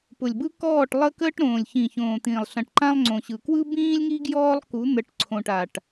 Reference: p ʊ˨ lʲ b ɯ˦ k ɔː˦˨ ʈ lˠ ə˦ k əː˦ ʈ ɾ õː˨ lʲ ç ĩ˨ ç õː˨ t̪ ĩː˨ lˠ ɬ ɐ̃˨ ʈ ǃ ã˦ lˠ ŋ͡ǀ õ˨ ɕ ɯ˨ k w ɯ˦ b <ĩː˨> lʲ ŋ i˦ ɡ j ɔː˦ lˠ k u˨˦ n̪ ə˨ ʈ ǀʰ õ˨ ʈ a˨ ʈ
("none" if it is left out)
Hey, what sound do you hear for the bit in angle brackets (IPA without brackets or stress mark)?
ĩː˦